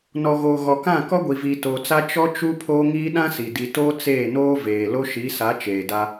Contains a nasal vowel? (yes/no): yes